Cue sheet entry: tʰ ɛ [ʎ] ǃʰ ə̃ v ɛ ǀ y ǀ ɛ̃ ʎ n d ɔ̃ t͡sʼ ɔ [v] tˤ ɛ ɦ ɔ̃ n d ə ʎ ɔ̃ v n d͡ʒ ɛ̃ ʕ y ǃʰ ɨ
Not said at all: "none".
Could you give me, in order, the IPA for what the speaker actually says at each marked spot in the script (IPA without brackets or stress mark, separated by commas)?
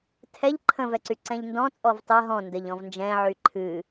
ʎ, v